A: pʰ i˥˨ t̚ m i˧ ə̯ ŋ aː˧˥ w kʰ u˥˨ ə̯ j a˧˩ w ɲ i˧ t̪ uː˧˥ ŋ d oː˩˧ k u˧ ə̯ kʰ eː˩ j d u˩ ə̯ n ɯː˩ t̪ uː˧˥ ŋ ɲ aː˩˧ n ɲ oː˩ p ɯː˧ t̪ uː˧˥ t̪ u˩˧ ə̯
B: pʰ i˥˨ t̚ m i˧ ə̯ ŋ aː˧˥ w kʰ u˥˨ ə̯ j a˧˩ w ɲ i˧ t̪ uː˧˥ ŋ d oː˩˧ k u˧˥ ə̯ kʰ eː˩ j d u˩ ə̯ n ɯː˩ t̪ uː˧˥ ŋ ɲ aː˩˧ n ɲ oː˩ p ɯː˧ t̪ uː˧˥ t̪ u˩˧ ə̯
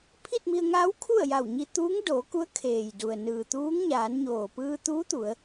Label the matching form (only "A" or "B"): B